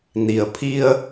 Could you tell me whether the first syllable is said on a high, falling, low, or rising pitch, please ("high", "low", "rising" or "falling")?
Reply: low